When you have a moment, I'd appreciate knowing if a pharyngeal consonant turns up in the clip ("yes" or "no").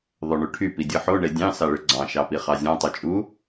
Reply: yes